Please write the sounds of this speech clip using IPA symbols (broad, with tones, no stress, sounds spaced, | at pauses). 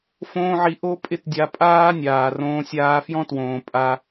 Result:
f õː˦ ʕ i˧ ʔ o˦ pʼ ɪ˦ t dʲ a˧ pʼ aː˦ nʲ aː˨ r õː˧ sʲ aː˧ f j ɔ̃˦ t w õː˨ pʼ a˧